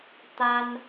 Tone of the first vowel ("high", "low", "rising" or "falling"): high